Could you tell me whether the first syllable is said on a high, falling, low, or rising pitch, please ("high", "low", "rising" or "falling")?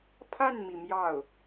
falling